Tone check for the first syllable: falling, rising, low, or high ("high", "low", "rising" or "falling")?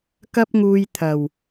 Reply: high